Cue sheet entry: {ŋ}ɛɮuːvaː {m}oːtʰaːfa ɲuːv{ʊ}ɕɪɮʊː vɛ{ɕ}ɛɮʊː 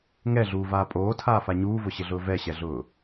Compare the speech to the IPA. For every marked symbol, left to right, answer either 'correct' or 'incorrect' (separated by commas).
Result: correct, incorrect, correct, correct